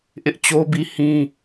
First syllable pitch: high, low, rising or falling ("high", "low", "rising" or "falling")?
high